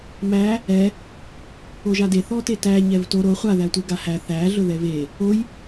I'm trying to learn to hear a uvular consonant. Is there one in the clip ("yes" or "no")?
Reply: yes